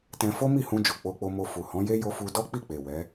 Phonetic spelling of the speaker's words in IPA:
t ɛ̃˧ f o˦ m i˦˨ h ũ˧ d͡ʒ o˨ k͡p o˧ k͡p o˧ m o˧ f u˨ h ɔ̃˨˦ j e˦ j o˧ f u˧ d ɔ˦ k͡p i˦˨ k͡p e˨ w ɛ˨˦

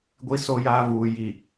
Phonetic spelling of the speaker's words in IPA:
ɡʷ i˦ s o˦ j aː˦ v uː˨ j i˨

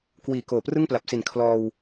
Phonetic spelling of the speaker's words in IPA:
k w iː˨˩ k oː˨˩ p r ɯ˥˩ ŋ p l a˨˩ p̚ s i˨˩ n kʰ l ɔː˧ w

